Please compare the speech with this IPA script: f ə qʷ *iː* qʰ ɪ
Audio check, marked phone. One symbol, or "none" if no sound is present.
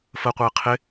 ɪː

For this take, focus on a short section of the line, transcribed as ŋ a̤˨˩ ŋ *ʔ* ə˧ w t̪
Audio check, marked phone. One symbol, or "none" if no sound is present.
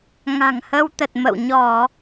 h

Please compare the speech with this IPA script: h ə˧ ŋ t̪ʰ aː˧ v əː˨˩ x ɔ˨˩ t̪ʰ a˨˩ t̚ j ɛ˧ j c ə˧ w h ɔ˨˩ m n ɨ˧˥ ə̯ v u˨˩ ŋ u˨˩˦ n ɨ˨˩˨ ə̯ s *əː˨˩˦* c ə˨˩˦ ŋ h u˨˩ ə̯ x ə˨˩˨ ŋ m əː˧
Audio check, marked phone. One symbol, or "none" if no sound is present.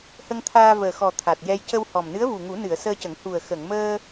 əː˧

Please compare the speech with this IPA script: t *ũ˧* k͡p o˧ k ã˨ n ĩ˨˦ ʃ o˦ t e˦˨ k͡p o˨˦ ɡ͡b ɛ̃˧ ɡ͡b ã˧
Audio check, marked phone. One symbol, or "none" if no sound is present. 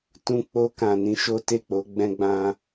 ũ˧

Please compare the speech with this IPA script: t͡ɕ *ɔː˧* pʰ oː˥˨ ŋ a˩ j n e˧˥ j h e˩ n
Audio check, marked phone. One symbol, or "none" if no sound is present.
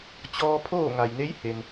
ɔː˧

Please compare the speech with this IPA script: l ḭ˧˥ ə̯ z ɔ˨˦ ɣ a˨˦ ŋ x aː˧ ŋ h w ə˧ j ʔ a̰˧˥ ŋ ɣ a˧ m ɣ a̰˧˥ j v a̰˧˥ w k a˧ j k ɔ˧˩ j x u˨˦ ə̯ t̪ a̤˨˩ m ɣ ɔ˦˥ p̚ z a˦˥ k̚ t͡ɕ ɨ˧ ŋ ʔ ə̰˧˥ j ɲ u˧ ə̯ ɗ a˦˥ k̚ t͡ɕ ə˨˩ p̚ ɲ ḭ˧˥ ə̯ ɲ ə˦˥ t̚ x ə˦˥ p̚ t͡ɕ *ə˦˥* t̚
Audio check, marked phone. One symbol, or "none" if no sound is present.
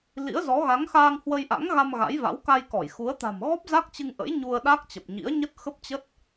ə˦˥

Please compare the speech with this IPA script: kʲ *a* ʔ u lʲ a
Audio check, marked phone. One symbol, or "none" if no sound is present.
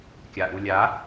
a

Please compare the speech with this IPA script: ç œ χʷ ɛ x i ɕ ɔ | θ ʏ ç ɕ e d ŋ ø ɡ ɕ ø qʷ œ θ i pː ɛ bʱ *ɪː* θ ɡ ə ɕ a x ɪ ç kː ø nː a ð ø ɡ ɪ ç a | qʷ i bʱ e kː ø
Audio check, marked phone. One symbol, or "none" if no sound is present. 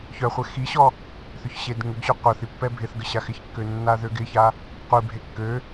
ɪ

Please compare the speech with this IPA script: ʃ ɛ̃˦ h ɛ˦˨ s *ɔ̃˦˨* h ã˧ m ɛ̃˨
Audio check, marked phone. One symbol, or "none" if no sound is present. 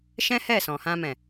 ɔ̃˨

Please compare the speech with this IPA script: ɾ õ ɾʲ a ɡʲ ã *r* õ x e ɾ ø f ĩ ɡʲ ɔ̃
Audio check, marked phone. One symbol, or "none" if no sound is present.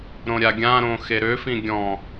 ɾ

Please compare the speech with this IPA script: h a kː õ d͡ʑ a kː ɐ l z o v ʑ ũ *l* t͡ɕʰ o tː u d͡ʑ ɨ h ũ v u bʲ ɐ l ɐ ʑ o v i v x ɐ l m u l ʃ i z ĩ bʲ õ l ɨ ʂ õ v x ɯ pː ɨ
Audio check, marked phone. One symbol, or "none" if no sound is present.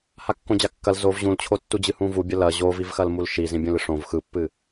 l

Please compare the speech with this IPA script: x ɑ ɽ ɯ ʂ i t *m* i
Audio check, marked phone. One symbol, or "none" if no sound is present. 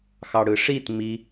m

